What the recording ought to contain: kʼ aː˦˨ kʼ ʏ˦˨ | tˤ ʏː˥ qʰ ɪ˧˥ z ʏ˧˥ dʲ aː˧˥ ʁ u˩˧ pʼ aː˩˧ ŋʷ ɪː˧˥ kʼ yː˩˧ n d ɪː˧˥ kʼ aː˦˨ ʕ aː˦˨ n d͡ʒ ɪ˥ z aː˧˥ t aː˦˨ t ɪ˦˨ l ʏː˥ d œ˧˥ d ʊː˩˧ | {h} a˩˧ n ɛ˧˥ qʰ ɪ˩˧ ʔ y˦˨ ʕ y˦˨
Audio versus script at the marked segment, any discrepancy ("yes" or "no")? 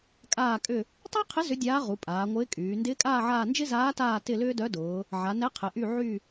yes